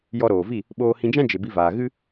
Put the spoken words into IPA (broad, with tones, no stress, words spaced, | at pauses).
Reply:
jɔ˧ɾoː˨vi˦˨ | ɓoː˧ hĩ˧d͡ʒã˦ d͡ʒe˨bi˧vaː˨ ɣɨ˦